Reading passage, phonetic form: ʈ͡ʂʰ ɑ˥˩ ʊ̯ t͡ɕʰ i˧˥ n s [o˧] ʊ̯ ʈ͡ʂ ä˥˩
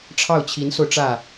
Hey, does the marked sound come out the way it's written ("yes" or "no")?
yes